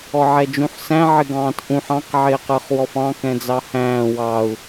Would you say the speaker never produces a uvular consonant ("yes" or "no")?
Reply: no